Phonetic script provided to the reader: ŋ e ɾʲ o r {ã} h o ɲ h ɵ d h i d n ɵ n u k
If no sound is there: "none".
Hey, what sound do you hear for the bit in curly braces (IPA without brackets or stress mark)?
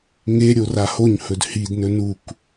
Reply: a